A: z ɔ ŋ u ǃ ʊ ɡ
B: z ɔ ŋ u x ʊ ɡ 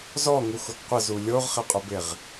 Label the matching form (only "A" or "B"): B